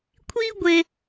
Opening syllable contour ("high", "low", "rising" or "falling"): high